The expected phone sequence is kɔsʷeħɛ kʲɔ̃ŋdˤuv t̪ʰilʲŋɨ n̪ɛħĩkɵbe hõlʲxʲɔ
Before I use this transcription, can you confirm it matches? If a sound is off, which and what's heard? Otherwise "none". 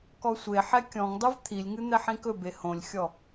none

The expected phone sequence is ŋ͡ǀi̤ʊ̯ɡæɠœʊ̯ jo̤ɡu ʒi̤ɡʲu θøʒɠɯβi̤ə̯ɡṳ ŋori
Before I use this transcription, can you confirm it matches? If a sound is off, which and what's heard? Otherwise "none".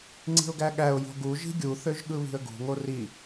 œ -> æ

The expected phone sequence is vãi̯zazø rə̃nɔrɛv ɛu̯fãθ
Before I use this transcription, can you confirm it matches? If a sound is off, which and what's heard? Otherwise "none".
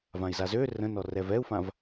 θ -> v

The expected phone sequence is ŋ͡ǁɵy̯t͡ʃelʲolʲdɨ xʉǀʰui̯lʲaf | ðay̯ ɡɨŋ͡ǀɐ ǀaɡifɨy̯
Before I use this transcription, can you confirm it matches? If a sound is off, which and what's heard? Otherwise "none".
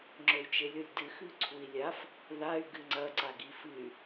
none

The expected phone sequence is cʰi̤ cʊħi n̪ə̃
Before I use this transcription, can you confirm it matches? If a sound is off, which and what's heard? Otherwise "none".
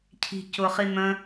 ħ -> χ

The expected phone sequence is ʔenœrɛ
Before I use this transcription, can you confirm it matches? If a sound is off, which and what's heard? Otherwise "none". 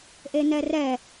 œ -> ɛ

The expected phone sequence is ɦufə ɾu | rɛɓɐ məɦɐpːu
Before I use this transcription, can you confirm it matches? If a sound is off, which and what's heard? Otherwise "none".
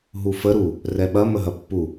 none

